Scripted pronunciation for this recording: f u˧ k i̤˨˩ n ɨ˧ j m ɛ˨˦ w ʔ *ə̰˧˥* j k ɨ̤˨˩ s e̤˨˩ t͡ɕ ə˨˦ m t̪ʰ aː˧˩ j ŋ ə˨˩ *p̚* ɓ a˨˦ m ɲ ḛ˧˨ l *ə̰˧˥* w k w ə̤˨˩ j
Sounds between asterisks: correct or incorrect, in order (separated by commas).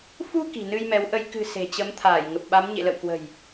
incorrect, correct, incorrect